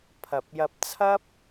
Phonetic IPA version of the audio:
pʰɐ˨p̚ jɐ˧p̚t͡sʰɐ˥p̚

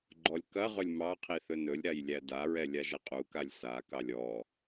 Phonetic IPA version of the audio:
ɡ͡ǃɔlʲkɐʁɵlʲ mɑqʰi θɵnɵlʲɾaj lʲædaɹɛ lʲaʒɐqʼukalʲ sakɑlʲ ɔ

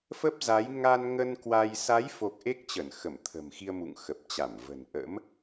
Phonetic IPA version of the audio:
fə˦˥p̚za˨˦j ŋa˧nŋə˧n kwa˧j sa˨˦jfo˨˩k̚ ʔe˦˥k̚t͡ɕə˧˩n xə˧˩mt̪ʰə̤˨˩mxi˧ə̯ mṵ˧˨ŋxə˨˩p̚t͡ɕa˧˩mvə̤˨˩n ʔə̰˧˥m

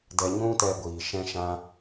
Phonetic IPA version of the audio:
dɛ˧ɲũ˦tɛ˧ɡʷiː˨ ʃɛ̃˧ʃã˧

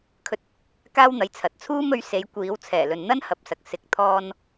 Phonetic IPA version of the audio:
kʰɵ˧t̚ | kaː˥wn̪ɐ˨˥jt͡sʰɐ˨t̚ t͡sʰuː˥mɵ˨˥ɥ se˨˥jkʷiː˨˥w t͡sʰɛː˨˩lɵ˨nn̪ɐ˥n hɐ˨p̚sɐ˨k̚ sɪ˨˥k̚ t̪ʰɔː˧n

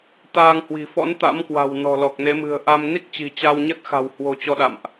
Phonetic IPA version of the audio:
t̪aː˧ŋhwi̤˨˩fɔ̰˧˥n t̪a̰˧˥mkwa̤˨˩w nɔ̤˨˩lɔ˨˩k̚ne˨˦mɨ̤˨˩ə̯ ʔa˧m ni˦˥k̚t͡ɕi̤˨˩ t͡ɕa˧wɲə˦˥t̚xa̤˨˩w hwo̤˨˩ t͡ɕɔ˧ɗa̰˧˨mʔ

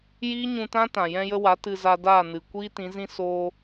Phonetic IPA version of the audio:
jiː˦ɲũ˧tã˦tã˨ jɛ̃˧jə˧wa˨˦ tɨ˧za˧daː˦˨nɨ˨ kʷiː˦tĩ˨˦zĩ˦ soː˧

